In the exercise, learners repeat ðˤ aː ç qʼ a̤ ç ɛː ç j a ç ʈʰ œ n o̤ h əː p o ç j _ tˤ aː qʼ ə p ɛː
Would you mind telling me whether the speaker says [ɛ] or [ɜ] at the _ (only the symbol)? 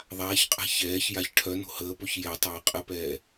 ɛ